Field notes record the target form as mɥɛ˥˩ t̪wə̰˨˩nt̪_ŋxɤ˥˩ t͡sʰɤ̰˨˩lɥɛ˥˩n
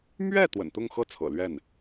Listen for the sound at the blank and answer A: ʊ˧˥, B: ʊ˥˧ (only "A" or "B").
B